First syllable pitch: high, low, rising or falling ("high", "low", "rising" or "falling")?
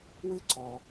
high